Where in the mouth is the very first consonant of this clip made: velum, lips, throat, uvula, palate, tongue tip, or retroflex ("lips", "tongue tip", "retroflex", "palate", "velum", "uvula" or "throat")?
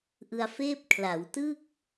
throat